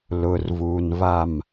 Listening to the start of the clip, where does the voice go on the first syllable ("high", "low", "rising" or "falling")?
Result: low